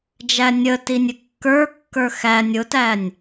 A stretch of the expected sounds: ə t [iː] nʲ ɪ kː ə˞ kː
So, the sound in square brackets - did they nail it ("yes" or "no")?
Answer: no